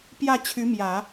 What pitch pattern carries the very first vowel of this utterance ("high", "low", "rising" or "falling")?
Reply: falling